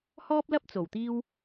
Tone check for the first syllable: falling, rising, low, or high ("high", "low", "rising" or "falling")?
high